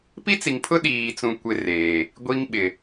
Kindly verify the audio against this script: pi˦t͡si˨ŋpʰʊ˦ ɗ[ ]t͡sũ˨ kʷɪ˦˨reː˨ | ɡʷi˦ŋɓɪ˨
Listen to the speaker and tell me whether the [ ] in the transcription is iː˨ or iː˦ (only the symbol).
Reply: iː˨